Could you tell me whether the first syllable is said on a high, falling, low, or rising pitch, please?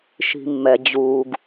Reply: low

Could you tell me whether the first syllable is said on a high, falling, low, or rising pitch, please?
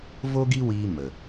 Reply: high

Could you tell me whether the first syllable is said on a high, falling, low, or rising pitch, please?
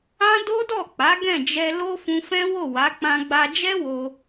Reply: high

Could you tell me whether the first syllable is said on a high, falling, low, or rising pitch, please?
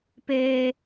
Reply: high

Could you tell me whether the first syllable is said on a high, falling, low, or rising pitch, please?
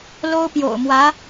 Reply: high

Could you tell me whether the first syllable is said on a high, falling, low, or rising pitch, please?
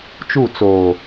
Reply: falling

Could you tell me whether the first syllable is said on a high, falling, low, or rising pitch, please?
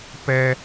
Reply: low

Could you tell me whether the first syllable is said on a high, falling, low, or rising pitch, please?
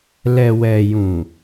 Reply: low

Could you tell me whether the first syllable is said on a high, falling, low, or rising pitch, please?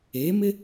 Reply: rising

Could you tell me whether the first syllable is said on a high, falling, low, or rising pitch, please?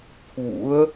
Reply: rising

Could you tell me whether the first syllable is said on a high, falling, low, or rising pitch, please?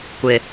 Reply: low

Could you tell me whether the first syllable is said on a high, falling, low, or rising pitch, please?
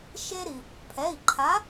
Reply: high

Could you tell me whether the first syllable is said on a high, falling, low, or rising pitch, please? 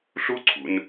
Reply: high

